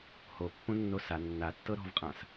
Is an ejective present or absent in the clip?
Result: present